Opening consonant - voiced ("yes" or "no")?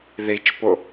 yes